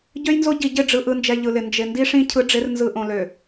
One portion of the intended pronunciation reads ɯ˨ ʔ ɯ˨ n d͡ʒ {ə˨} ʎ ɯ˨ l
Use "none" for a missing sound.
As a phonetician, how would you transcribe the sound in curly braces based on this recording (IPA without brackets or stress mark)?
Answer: ɛ˨